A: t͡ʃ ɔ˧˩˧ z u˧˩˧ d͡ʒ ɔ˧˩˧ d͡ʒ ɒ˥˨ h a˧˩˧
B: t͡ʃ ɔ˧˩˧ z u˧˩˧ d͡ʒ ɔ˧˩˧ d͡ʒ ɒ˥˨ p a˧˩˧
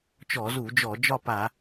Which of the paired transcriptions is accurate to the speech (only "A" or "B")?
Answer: B